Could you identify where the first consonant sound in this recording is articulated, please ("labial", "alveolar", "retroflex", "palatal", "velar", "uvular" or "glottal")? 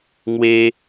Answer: velar